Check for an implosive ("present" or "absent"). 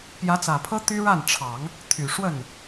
absent